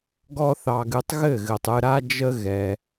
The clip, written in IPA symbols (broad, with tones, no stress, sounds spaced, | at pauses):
ɡ ɔ˦ θ ɑ˧ ɡ ɨ˧ tˤ ɣ ɘ˦˨ ɣ ɘ˨ tˤ ɨ˧ ɾ a˦ d͡ʒ ə˦ ɣ ɛ˧